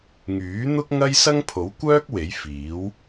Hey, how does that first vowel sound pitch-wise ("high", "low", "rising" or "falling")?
rising